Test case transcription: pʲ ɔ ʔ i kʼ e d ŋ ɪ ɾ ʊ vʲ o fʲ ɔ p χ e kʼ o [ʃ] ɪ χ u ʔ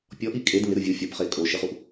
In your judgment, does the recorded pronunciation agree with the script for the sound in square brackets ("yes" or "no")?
yes